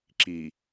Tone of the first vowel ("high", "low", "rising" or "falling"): low